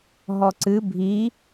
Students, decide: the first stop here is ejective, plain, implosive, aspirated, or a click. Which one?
click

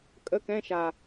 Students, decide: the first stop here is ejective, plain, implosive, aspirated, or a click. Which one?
ejective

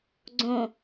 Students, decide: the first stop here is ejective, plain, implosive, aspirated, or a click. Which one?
click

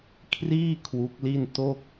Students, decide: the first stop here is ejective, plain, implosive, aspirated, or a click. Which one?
aspirated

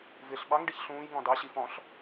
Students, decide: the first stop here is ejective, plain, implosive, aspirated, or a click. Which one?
implosive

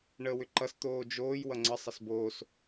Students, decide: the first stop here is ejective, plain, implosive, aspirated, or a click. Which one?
click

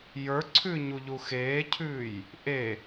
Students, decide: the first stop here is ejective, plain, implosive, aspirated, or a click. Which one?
click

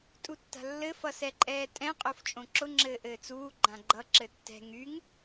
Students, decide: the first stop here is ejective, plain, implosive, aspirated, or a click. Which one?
ejective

